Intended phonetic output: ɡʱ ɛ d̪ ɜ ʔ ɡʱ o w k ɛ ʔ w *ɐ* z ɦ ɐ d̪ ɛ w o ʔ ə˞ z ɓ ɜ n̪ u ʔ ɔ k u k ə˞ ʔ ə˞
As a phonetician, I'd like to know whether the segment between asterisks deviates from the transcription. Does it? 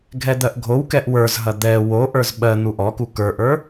yes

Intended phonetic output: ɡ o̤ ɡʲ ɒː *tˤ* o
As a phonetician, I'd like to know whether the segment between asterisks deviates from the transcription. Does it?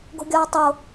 no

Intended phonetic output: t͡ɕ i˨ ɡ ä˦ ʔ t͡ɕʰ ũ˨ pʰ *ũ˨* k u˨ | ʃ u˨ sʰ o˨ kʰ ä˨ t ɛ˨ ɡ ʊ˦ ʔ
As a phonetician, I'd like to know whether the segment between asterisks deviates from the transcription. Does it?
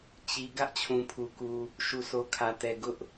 yes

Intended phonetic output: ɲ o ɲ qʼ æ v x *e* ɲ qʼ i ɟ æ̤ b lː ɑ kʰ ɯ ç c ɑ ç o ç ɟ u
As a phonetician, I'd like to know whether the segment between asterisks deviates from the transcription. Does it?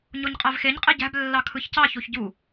no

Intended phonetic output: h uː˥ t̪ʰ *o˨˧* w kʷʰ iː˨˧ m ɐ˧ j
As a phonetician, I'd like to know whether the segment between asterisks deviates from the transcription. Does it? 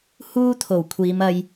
yes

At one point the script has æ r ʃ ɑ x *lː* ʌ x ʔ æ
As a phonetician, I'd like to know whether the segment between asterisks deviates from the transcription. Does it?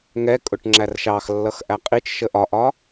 no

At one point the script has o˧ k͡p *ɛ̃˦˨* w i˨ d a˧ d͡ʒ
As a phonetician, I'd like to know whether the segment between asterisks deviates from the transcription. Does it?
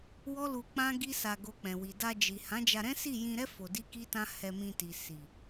yes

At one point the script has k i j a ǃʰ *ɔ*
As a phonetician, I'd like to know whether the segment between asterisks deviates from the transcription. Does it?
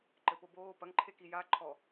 no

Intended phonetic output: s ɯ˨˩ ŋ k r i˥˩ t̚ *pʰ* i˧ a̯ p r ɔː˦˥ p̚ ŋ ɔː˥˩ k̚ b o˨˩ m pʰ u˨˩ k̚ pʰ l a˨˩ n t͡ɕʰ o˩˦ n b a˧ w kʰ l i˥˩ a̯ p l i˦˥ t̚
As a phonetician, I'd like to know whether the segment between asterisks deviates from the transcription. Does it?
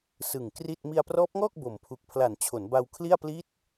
yes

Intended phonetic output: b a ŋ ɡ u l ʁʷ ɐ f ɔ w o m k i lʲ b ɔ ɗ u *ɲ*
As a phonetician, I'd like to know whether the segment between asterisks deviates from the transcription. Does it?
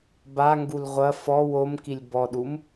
yes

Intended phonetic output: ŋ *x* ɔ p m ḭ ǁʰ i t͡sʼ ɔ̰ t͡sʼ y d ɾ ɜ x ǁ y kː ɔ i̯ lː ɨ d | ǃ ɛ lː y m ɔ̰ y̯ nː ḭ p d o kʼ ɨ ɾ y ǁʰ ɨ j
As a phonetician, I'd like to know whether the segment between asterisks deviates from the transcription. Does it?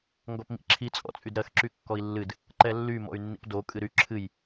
yes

